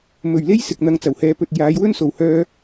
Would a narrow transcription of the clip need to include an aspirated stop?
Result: no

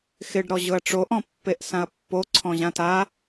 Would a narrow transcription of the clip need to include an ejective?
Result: no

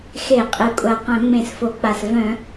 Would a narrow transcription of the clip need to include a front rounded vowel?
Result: yes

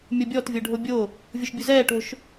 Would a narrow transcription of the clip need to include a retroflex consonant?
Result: yes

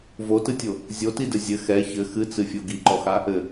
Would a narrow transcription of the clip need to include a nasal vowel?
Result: no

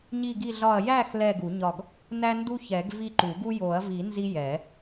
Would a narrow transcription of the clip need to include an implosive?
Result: no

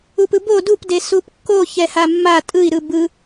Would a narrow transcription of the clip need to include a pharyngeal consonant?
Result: no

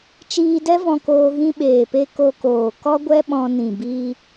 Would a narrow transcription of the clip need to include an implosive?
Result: yes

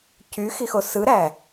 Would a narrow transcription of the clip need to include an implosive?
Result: no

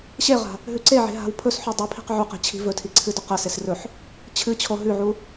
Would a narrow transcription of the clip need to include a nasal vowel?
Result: no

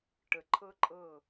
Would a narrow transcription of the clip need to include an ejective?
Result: yes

